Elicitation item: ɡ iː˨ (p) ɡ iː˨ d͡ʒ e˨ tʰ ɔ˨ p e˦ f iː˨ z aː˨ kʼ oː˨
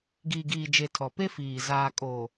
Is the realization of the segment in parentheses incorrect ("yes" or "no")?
yes